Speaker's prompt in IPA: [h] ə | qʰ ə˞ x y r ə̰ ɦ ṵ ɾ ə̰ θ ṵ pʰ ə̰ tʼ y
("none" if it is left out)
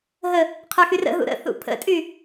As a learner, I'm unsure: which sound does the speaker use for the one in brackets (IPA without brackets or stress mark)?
ɦ